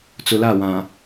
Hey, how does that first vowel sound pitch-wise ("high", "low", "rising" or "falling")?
low